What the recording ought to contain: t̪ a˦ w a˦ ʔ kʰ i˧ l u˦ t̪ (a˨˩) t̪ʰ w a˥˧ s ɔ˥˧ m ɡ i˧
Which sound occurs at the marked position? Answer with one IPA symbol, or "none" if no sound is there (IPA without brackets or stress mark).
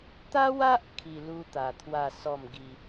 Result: a˨˩